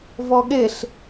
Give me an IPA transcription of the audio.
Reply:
v ɔ ɠ e ɬ

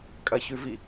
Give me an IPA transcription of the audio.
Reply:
kʼ ɐ ç ʉ v i

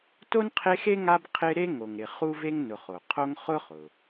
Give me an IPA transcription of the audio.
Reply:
t o˥ n qʰ e˦ x e˥ ŋ a˦ b qʰ ɪ˦ ɾ e˥ ŋ o˨ ŋ ɾ ɪ˨ χ u˥ v e˥ ŋ n ʊ˨ χ o˩ qʰ o˥ ŋ χ ʊ˥ χ ʊ˩

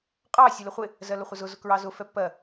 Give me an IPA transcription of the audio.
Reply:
qʼ ɑ sʲ u l ə χʷ ɪ | z ɜ l ʊ χʷ ə z ʊ z ʊ k ɹ ɑ z ʊ f ɛ pː ɜ

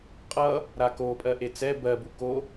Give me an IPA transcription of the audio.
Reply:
qʼ ʌ | ɾ a k o pʼ ɜ ʔ e t͡s ɛ b ɜ b u k o

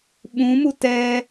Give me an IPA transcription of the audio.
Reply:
ɓ ũ m u t ɛ

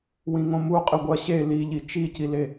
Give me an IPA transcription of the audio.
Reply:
w ĩ ŋ õ m u qʼ ɨ ɡʷ ɐ ɕ e l i ʎ i t͡ʃ i c i l e

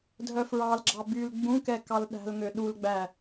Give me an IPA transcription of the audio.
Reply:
dʱ œ f ɹ ɑ l ɡ͡ǁ ɑ b y l ɡ͡b ũ k ɛ k ɑ l ɗ æ̤ l ŋ ø ɗ u l ɡ͡b æ

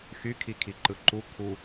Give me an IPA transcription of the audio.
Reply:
x y kʰ i kʰ i ǃ ɯ ǃ u kʰ u

